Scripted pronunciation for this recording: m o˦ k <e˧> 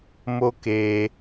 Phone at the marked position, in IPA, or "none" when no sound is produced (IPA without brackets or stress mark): e˧